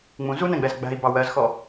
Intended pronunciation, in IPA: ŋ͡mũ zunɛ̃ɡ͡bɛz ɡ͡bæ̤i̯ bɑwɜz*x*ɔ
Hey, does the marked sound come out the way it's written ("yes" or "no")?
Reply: yes